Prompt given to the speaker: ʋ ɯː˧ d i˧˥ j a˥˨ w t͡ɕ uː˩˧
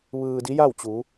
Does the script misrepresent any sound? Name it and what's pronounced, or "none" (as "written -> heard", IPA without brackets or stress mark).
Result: none